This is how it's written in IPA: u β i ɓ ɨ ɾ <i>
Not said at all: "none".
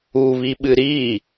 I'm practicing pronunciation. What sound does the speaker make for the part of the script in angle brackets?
i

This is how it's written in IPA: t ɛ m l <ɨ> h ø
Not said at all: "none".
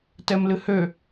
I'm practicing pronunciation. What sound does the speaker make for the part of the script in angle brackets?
ɨ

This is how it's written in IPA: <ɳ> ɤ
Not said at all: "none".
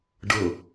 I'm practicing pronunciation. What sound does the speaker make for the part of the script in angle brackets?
ɖ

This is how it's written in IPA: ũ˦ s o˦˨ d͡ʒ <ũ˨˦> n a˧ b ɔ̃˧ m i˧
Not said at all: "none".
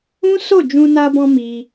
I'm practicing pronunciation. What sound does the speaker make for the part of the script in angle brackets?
ũ˧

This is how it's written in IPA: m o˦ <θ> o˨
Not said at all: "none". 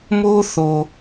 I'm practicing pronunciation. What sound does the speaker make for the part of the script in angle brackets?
θ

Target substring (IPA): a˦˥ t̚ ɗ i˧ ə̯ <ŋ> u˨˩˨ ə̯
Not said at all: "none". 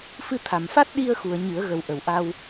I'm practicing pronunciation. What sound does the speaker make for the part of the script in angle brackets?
x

